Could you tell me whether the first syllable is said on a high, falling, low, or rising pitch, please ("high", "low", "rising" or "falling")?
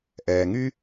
low